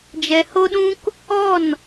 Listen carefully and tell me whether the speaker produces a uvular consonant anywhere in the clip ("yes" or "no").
no